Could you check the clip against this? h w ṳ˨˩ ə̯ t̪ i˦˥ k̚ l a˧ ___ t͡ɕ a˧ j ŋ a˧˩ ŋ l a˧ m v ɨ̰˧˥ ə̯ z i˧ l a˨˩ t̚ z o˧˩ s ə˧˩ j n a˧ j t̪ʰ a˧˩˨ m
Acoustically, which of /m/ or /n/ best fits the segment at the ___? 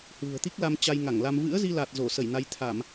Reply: m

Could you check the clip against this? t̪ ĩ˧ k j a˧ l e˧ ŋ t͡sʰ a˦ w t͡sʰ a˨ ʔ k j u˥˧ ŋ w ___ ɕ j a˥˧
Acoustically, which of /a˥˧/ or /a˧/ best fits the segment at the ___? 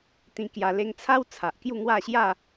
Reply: a˥˧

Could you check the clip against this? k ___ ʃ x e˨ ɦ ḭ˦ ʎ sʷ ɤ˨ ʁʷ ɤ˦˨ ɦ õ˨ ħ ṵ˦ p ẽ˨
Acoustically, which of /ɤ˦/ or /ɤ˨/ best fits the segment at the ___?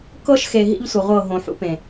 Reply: ɤ˦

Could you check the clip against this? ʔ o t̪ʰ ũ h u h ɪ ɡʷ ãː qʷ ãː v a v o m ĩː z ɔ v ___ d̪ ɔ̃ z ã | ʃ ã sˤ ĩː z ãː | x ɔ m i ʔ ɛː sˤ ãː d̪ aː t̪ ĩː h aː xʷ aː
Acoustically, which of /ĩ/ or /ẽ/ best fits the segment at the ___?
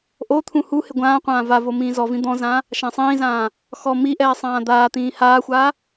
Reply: ĩ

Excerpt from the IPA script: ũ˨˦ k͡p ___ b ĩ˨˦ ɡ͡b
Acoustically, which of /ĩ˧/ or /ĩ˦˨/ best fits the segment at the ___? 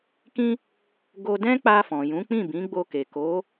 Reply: ĩ˦˨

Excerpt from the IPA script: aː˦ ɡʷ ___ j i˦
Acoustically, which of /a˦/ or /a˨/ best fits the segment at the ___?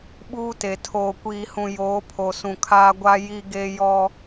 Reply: a˦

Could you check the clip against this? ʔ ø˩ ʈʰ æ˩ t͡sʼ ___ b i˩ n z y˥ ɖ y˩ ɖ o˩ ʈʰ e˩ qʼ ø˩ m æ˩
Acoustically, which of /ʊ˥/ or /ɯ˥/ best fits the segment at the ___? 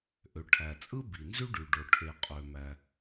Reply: ɯ˥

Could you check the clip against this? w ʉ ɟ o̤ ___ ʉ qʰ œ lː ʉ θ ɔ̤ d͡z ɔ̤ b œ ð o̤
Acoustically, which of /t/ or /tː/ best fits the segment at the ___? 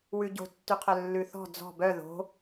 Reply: tː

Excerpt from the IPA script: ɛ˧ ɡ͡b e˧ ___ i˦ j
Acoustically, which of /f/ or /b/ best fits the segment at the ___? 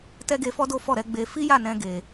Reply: f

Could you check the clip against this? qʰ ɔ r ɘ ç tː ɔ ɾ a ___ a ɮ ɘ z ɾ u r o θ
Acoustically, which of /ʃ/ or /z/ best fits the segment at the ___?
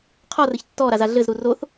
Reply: z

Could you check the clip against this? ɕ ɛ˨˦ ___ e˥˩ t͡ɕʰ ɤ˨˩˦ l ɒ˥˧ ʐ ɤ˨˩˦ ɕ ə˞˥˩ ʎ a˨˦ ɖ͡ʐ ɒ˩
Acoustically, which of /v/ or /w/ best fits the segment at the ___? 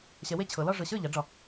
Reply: w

